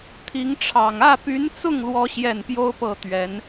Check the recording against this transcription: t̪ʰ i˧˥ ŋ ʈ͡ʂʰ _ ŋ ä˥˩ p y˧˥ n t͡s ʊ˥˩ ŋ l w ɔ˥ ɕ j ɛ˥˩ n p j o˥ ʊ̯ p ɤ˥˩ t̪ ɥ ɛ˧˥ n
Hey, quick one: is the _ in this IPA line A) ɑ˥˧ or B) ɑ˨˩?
B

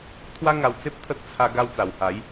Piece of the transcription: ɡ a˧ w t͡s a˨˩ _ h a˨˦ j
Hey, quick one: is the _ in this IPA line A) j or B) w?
B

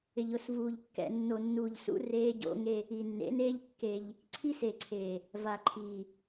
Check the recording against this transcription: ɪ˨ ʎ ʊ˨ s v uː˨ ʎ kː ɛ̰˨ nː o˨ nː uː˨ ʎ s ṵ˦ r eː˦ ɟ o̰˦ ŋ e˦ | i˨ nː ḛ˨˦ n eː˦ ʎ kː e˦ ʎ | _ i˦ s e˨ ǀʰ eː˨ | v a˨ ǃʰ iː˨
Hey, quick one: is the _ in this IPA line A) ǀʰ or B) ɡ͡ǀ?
A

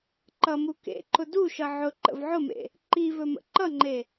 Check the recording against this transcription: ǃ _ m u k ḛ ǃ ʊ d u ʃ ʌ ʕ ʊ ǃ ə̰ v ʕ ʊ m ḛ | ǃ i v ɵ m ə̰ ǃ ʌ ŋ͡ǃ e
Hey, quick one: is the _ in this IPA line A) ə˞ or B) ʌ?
B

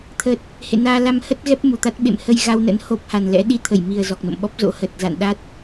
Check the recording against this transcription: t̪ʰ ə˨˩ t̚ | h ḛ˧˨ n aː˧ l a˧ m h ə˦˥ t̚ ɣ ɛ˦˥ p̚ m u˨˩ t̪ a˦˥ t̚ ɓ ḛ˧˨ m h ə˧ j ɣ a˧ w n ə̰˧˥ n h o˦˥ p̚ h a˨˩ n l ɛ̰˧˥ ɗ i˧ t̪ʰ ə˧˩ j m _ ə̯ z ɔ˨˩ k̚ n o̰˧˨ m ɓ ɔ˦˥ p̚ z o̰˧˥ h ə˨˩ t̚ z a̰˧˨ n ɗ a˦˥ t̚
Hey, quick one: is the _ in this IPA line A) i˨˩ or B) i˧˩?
A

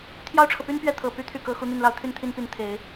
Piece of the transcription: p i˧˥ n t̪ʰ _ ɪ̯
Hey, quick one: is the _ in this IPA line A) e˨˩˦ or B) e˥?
A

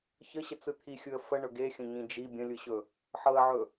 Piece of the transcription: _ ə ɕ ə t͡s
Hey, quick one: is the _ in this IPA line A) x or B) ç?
B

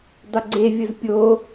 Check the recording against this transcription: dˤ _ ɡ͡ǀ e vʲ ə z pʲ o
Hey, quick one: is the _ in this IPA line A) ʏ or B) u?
A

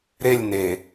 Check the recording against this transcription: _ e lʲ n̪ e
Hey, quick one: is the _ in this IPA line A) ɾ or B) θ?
A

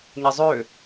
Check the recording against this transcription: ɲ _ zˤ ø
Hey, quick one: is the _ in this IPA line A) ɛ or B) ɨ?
A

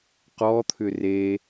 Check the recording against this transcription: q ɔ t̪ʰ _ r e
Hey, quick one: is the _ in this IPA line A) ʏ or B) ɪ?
A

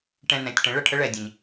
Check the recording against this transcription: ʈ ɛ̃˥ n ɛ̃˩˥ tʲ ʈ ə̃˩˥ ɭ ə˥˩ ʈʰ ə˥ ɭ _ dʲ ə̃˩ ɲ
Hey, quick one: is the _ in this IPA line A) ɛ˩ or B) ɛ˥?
A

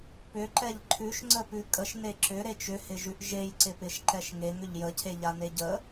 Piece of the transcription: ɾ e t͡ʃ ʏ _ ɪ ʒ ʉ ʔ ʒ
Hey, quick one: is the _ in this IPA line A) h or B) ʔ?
A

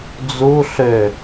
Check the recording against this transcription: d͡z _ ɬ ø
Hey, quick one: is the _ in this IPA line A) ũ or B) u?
B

